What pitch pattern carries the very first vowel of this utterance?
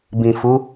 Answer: low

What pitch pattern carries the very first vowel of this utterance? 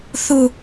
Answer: high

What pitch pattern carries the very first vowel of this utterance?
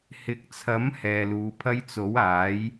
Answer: rising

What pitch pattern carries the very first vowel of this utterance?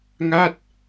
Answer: falling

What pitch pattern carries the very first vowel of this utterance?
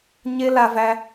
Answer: high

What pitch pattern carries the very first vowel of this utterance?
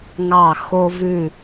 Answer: falling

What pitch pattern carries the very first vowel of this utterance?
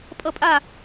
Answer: falling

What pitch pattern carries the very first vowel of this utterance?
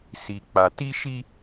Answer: low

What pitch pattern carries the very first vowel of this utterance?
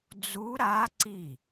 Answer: rising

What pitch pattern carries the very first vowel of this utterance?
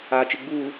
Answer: low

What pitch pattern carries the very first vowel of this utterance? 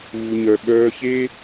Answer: low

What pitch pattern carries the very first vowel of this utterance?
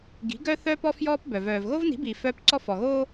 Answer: rising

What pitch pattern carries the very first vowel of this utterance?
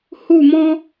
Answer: falling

